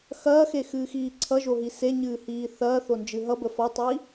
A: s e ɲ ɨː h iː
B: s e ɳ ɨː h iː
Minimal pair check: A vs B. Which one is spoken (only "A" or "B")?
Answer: A